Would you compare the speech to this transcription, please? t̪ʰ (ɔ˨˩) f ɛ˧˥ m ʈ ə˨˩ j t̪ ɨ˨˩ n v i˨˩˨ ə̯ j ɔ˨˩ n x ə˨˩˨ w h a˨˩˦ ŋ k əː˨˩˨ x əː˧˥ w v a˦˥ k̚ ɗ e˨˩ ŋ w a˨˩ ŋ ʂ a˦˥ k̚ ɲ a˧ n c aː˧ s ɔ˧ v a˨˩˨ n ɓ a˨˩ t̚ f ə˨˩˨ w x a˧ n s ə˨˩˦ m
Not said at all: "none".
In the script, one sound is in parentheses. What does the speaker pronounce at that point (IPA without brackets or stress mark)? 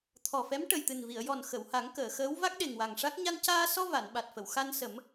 ɔ˨˩